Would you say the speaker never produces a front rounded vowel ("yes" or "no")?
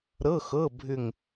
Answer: no